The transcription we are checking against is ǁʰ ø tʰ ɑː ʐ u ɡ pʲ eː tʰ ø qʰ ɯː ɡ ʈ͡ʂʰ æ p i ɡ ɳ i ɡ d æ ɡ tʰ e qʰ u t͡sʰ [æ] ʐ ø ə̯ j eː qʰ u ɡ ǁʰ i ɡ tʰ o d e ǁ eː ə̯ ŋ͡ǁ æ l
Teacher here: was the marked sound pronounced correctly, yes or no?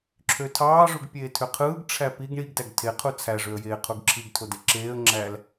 yes